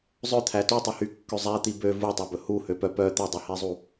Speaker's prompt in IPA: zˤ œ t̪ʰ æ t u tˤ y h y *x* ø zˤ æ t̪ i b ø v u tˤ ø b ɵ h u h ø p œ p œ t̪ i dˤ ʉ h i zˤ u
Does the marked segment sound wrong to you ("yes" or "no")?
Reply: yes